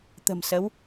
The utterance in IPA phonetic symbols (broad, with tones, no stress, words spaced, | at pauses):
t̪ə̤˨˩msə˨˦w